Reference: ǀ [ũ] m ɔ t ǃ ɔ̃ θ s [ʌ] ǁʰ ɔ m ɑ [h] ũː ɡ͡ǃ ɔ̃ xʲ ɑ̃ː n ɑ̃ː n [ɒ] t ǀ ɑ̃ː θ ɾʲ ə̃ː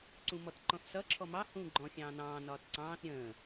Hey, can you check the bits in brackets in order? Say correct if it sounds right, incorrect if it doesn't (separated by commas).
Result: correct, correct, correct, incorrect